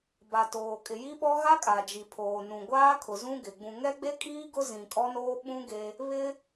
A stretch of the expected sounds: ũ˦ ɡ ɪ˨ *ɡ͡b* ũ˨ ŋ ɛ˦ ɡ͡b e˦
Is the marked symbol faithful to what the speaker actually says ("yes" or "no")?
yes